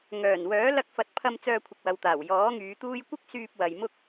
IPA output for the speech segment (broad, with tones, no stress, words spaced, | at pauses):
ŋœː˨˩nwœː˨˥ lɐ˧k̚fɐ˨˥t̚pʰɐ˧m t͡sœː˧kʷʰɪ˨k̚wɐ˨wt̪aː˨˩w jɔː˨˥ŋyː˨˧t̪uː˥j kʷɪ˥k̚syː˧p̚ wɐ˨jmʊ˥k̚